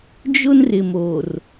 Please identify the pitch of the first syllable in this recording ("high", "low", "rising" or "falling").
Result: high